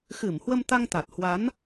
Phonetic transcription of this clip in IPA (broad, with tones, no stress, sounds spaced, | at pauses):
x ɨ˧˩ m h w ə˧ m t̪ a˧ ŋ t̪ a˨˩ t̚ h w a˨˦ n